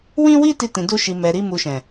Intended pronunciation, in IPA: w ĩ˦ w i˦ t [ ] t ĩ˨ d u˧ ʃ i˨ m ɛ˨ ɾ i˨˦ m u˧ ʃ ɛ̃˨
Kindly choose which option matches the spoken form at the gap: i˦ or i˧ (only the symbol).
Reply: i˧